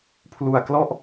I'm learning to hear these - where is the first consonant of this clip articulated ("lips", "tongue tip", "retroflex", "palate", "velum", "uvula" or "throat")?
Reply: lips